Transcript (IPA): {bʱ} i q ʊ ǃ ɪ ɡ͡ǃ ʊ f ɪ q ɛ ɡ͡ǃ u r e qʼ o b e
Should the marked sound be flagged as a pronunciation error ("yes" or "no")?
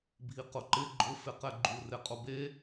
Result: no